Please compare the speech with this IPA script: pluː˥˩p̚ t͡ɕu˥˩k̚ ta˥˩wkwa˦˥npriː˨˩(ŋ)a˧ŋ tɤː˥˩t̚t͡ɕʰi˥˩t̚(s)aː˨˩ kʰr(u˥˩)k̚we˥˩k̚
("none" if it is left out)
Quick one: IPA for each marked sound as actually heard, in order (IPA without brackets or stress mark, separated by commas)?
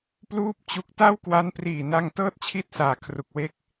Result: n, s, u˨˩